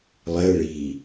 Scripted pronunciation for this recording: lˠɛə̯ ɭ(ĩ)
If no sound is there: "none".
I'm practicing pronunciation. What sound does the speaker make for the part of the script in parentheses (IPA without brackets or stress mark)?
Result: i